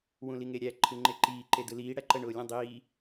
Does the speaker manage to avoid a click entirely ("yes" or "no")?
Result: no